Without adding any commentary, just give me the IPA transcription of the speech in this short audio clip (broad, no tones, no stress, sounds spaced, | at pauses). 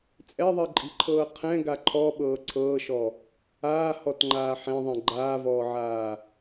t͡sʼ ɛ ðˤ i ǃʼ i̤ ǃʰ ɤː qʰ ɛ̃ ɡ a ǃʰ ɔ ɓ ɤː ǀʰ ɤː ʃ ɔ | aː h ɔ t ŋ͡ǃ aː ħ ɛ̃ ðˤ ɛ̃ ɡ͡ǃ aː v ɔː ʕ aː